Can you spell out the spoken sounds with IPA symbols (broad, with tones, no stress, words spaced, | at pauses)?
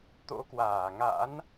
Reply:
t̪o̰˧˥kwaː˧˩ŋa̰˧˥n